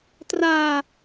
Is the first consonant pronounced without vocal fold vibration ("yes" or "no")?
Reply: yes